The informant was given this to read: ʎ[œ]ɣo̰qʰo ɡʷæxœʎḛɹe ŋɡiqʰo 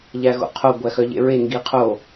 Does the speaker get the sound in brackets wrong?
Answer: yes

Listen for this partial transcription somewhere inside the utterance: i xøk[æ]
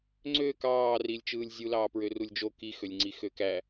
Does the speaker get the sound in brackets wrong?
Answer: no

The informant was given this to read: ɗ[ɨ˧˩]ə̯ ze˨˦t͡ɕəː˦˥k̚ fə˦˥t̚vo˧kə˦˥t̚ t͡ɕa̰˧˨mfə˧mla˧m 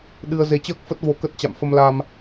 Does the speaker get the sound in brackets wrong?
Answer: yes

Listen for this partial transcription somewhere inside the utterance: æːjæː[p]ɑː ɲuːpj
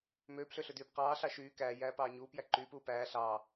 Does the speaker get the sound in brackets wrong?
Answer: no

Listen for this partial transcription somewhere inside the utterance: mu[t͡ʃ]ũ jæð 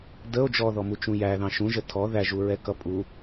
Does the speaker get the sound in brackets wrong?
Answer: no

